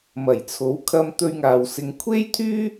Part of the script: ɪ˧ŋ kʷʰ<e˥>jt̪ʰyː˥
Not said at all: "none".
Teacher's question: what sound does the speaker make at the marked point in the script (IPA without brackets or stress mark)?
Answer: e˥